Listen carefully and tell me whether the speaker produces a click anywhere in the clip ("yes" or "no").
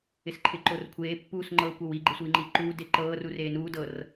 yes